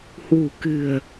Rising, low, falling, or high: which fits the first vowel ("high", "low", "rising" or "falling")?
low